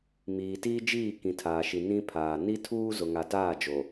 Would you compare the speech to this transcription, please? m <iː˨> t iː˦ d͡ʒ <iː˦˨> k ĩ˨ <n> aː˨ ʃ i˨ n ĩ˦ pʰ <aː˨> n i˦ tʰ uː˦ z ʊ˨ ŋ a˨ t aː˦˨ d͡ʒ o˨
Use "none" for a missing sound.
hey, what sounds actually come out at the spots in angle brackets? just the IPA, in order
iː˨, iː˦˨, tʰ, aː˨

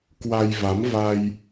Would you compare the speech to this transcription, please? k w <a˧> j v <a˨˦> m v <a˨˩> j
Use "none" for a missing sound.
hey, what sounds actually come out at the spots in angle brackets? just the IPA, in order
a˧, a˨˦, a˧

